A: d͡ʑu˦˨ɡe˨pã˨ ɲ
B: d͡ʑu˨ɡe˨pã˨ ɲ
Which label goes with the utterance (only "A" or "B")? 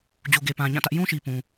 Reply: B